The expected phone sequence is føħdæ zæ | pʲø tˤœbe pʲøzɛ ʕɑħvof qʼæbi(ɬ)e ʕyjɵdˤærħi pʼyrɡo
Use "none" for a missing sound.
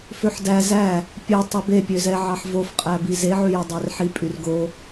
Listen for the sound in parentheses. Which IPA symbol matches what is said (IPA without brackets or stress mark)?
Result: z